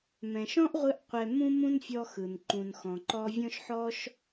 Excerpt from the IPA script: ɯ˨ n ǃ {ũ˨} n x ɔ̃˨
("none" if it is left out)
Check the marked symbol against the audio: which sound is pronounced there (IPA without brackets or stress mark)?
ũ˨